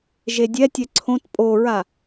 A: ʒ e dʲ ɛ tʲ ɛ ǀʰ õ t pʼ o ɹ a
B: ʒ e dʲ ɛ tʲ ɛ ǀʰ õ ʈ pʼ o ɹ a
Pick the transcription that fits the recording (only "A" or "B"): A